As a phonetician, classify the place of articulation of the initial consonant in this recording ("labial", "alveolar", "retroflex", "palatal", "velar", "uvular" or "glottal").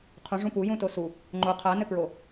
uvular